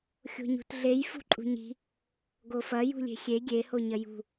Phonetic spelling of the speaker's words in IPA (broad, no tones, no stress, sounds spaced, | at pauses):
xʲ o̤ ɲ ṳ t ɮ e j f ṳ ǃʼ ṳ ɲ i̤ | ɡ o f ɐ j ṳ lʲ e̤ xʲ e ɡʲ e h o ɲ ɐ j ṳ